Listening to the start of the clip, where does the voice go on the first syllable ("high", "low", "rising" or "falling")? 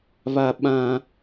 high